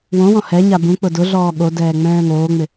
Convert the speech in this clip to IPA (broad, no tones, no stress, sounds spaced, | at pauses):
w õ w ɔ̃ h ɛ ɲ a b ũ k͡p ʊ d ʊ ɮ ɔː ɠ o d ɛː ŋ͡m ɛ̃ː ŋ oː ŋ͡m ɪ